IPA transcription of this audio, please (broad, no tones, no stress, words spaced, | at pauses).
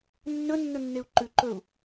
nːɵ nːɵnːeu̯ǃʉ ǃɵu̯